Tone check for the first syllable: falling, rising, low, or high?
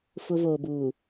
high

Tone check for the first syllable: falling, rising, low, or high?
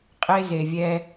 high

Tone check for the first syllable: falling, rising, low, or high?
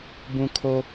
high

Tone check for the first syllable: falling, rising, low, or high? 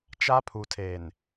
high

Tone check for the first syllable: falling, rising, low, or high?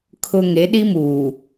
low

